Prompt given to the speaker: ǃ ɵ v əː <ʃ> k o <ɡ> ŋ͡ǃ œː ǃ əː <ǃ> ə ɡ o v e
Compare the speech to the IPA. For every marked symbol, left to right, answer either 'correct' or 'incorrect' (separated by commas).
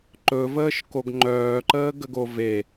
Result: correct, correct, incorrect